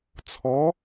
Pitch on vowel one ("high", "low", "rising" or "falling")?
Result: rising